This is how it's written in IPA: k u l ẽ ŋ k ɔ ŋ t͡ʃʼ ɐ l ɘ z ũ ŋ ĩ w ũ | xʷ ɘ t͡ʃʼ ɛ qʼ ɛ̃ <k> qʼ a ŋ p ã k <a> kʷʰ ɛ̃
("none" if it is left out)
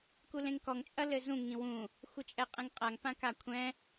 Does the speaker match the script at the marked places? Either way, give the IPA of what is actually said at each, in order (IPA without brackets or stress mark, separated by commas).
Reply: ŋ, a